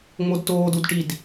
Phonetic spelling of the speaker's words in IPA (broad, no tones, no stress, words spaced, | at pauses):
ŋ͡modtoːd udʈid